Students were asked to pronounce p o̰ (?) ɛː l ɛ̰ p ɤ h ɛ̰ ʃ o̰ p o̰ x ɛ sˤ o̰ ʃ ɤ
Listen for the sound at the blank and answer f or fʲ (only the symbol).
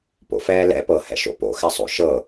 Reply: f